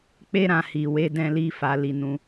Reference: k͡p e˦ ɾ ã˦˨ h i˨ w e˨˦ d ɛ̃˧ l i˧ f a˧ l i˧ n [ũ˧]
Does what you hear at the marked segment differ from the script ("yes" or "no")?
no